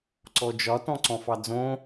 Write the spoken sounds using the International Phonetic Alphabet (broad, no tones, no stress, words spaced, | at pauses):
ǀɔd͡ʒɒ tɔ̃ǀɔ̃fɑd͡zõ